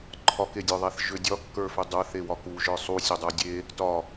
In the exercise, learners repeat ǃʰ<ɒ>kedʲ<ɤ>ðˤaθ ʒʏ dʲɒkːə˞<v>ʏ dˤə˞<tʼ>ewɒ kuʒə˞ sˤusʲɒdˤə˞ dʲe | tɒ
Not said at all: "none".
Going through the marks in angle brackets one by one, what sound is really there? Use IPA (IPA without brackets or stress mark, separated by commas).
ɒ, ə˞, f, θ